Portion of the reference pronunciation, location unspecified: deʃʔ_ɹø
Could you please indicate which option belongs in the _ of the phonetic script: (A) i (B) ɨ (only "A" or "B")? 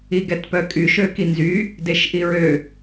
A